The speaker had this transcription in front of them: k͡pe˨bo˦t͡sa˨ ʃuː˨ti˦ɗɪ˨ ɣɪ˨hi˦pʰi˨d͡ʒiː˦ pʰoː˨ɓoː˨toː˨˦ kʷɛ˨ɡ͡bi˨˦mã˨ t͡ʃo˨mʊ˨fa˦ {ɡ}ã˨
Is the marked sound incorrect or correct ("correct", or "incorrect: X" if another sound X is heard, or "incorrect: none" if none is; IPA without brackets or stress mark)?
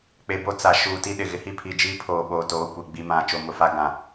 correct